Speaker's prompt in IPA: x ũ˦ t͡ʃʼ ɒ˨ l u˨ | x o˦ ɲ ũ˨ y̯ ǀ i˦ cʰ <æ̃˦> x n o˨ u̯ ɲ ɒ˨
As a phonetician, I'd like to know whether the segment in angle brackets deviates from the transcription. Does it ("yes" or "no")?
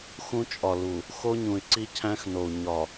no